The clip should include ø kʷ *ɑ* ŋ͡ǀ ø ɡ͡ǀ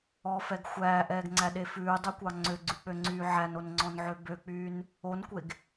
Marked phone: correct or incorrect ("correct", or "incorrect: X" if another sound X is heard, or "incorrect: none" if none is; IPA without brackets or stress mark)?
correct